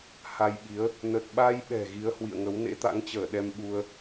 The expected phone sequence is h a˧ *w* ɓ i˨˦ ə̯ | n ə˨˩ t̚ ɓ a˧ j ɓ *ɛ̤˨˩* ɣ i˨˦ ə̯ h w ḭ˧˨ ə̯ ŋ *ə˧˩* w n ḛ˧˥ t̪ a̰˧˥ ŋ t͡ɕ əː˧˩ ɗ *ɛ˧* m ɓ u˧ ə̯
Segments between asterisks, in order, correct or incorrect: incorrect: j, correct, incorrect: ə˨˦, correct

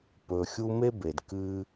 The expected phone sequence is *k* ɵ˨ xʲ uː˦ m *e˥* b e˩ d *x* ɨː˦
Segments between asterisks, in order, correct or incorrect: incorrect: p, correct, incorrect: k

